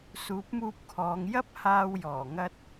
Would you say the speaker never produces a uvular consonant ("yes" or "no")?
yes